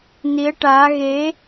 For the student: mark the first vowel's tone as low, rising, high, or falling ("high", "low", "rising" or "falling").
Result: rising